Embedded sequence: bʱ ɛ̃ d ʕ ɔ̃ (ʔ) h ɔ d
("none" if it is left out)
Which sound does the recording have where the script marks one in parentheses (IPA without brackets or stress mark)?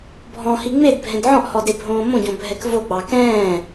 ʔ